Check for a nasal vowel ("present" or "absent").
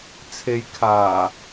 absent